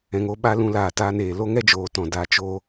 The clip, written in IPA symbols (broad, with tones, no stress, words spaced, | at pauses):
ɛ̃˨ŋo˧ɓa˧ lũ˧laː˨ taː˧n eː˨ lo˦ŋɛ˦d͡ʒoː˨ tɔ̃˨da˨˦ t͡ʃo˧